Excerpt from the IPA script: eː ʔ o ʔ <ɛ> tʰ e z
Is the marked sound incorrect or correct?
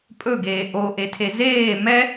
incorrect